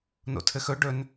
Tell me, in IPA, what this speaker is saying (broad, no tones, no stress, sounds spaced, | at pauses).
n o̰ tʰ ɘ x ɵ ɖ ɵ n